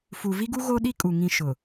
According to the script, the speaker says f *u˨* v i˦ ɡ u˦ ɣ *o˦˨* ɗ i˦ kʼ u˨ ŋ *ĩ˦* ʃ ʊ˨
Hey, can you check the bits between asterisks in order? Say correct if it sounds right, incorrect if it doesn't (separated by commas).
correct, incorrect, correct